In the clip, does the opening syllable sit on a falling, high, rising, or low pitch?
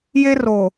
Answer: high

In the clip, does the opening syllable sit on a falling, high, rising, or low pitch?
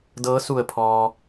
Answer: rising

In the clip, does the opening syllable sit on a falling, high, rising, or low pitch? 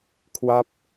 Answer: falling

